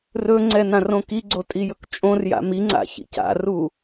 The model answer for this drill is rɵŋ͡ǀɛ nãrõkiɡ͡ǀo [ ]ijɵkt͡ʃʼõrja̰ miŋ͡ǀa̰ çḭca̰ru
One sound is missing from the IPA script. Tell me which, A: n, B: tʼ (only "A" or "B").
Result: B